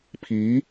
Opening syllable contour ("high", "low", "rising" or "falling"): rising